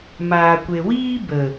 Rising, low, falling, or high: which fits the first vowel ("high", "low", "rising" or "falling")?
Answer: low